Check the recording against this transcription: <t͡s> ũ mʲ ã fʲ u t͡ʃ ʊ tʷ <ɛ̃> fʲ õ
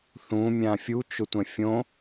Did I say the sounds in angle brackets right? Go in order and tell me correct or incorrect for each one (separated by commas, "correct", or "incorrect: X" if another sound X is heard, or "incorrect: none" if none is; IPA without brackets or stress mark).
incorrect: θ, correct